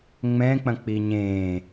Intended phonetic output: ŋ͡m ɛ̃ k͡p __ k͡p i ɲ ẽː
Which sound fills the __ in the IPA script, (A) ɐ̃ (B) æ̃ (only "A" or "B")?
A